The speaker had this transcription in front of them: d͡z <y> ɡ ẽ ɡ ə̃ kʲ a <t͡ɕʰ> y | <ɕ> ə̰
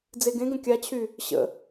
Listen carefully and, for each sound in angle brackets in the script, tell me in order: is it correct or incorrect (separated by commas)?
incorrect, correct, correct